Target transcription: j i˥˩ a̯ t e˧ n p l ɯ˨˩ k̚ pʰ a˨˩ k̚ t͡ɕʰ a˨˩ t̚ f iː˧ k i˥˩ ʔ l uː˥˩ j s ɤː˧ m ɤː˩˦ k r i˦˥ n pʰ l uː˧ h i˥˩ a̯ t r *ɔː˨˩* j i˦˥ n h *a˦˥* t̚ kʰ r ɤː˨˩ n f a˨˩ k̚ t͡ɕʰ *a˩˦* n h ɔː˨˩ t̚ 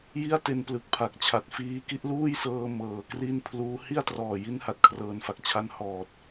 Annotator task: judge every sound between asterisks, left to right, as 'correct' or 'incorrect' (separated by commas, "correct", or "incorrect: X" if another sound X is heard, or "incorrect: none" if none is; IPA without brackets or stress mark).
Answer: correct, incorrect: a˨˩, incorrect: a˧